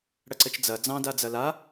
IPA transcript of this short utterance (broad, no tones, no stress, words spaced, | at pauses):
ɽɐǀɘt͡ʃd͡zɐ d͡zɑ̃dad͡zɐ la